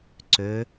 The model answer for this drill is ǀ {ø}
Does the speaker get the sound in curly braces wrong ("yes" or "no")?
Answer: no